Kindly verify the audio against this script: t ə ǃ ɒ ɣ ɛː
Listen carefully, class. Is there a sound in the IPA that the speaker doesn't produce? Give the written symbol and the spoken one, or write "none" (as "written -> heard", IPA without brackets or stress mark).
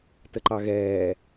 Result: ɒ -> ɑ